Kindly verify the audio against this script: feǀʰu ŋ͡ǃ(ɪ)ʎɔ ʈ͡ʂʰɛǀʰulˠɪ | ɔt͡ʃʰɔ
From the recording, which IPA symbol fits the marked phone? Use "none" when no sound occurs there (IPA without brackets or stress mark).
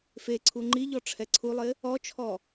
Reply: i